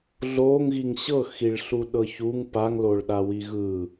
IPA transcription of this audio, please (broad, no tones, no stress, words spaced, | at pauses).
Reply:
ɮoŋɣiŋ ɕɤxiɭɬuɗɤ çuŋ paŋloɭɗawi ɣɯ